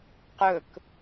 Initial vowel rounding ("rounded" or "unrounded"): rounded